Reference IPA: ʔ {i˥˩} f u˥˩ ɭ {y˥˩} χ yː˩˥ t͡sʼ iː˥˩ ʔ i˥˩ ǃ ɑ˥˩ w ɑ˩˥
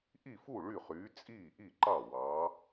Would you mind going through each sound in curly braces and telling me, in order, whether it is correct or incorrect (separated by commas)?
correct, correct